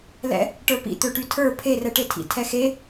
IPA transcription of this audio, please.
lɛ̰ | ʈə˞pḭ t̪øʈytʰə˞ pʰerɛʈetʰḭ tʰɛxe

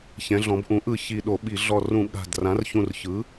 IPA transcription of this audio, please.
çɛ̃˩˧ɮɔ̃˩˧bʔũ˩˥ʔɯ˧˩ çi˧˩ɗo˧˩˧ɓi˧˩˧ ɮɔ˧˩rũ˧˩˧ ɠa̤˧˩d rã˩˥rçũ˧˩r çɯ˩˥

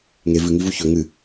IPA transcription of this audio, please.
ŋe vɨŋivu çɵ ŋɨ

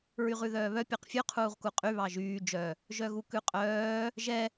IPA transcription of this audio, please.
ɹyʁʉðœːβœ pʲɑqfʲʉ qʰuːʁkuqʼy βɑʒyː d͡ʒœ | ʒœɣukʉqʼœː | ʒɛ

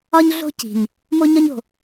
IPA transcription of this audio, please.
ɒ˦ɲɮo̤˦ ci̤˨ɲ | mo˦ɲɒ˦ɲo̤˨

